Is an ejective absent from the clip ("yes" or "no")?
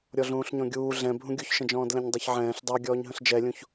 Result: yes